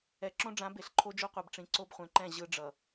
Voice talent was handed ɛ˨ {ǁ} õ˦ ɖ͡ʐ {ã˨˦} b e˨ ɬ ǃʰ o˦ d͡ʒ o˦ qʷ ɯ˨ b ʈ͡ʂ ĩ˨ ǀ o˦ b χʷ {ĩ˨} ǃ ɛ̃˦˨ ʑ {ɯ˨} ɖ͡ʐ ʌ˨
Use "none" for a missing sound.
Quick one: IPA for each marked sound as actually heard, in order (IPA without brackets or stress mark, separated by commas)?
ǁ, ã˨˦, ẽ˨, ɯ˦